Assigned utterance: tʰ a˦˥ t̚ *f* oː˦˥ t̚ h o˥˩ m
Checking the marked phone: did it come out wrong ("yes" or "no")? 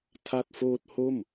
no